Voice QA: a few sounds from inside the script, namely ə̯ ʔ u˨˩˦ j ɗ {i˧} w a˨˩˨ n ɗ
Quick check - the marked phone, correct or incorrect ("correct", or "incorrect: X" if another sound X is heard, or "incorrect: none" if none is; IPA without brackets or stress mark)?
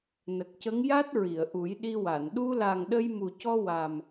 correct